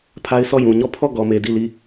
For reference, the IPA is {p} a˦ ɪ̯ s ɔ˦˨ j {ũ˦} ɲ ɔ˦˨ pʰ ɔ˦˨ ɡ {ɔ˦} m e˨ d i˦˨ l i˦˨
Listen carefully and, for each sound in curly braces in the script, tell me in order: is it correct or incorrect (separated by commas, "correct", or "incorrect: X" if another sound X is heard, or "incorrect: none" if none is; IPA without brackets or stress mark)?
incorrect: pʰ, incorrect: ũ˨, incorrect: ɔ˨